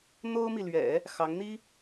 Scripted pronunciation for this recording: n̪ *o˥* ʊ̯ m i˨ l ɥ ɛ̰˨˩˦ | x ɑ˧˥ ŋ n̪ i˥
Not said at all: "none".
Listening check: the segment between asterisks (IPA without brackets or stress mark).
o˥